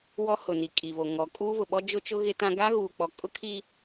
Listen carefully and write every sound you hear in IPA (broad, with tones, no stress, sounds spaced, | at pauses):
w ɔ˦ h ʊ˨ n i˨ kʼ i˨ β o˨ ŋ ɔ˨ kʼ uː˦ β ʊ˨ ɓ ɔ˦ d͡ʒ ʊ˦ t͡ʃ ʊ˦ ɣ ɪ˦ t ã˦ ɡ a˦ ɣ uː˨ k͡p ɔ˨ kʼ ʊ˦ kʰ i˦